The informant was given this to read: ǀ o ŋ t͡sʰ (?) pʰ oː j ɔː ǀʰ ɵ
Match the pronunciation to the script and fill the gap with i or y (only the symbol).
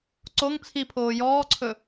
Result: i